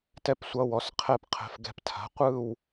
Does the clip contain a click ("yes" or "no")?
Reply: no